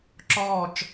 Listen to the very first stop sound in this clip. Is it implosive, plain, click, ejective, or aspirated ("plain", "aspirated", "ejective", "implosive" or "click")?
click